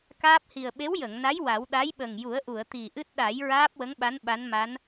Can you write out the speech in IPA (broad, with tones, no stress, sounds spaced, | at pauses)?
k aː˦˥ p̚ h i˨˩ ə̯ ɓ e˧˥ w j ə˨˩˨ ŋ n a˧˥ j w a˨˩˦ w ɗ a˧˥ j ɓ ə˨˩ ŋ j u˨˩˦ ə̯ ʔ u˨˩˨ ə̯ t̪ i˨˩ ʔ ɨ˦˥ t̚ ɗ a˨˩˦ j ɹ aː˦˥ p̚ w ə˧˥ ŋ ɓ a˧˥ n ɓ a˧˥ n m a˧˥ n